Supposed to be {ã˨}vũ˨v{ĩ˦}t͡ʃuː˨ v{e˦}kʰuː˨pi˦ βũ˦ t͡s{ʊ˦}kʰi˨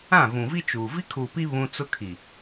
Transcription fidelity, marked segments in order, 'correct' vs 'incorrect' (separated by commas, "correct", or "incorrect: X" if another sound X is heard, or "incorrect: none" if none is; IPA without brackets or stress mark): incorrect: ã˦˨, incorrect: i˦, incorrect: i˦, correct